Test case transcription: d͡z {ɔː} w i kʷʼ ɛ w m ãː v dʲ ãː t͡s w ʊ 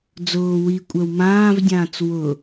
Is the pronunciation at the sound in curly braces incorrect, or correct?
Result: incorrect